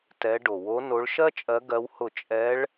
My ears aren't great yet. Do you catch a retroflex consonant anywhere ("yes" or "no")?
yes